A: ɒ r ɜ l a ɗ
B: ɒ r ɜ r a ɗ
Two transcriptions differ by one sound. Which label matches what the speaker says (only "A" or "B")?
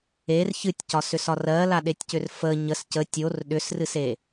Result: A